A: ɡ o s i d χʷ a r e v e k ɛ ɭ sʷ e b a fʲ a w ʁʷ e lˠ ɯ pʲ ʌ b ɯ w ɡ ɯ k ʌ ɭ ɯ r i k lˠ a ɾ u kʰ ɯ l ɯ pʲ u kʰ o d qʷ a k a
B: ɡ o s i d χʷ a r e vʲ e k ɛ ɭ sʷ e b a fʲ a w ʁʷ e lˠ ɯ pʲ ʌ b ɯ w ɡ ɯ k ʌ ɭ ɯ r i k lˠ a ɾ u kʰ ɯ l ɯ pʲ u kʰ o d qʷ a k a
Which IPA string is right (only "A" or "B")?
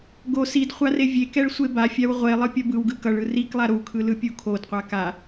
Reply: B